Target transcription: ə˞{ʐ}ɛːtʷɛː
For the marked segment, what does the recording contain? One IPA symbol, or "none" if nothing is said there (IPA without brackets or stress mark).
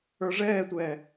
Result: ʐ